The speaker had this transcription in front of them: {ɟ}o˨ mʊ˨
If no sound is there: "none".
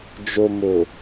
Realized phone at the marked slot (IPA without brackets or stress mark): d͡ʒ